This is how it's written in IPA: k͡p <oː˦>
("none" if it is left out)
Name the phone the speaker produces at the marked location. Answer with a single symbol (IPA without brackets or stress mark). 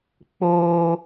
oː˦